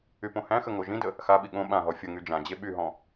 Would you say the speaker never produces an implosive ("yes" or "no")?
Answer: no